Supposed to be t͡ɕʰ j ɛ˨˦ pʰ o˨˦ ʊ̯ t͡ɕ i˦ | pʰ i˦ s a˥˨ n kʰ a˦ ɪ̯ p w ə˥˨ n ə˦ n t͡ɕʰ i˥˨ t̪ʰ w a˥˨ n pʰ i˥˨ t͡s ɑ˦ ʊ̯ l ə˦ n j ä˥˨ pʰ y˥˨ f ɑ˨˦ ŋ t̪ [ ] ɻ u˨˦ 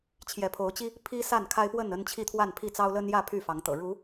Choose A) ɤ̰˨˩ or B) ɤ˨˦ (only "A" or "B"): A